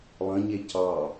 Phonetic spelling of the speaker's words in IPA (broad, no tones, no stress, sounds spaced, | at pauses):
lˠ ə̃ ɲ e c ɑ